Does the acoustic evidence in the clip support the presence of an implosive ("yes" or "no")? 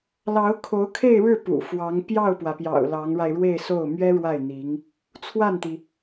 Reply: no